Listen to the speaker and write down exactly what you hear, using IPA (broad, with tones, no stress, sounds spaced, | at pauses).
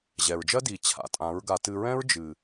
ʑ ɛ˨ ɹ d͡ʒ ɜ˦ d i˨ t͡ɕʰ a̰˧ tʼ ã˨˦ ɹ ɡ a˧ t ɨ˧ ɹ ɛ̃˦ ɹ d͡ʒ ɨ˨